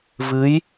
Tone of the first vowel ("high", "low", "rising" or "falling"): rising